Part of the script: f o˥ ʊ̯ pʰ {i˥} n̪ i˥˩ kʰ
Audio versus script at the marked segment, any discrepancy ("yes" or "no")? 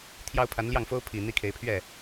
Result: yes